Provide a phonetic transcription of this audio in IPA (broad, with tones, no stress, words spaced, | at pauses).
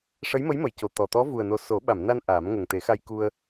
ʂə˧˥jmə˧˥jmə˨˩˨jco˨˩˨ t̪ɔ˨˩ t̪ɔ˧˥vu˨˩ə̯no˨˩ so˨˩˦ ɓa˨˩˨mna˧n ʔaː˨˩˦mŋə˨˩ŋ t̪e˨˩˦xa˧jku˧ə̯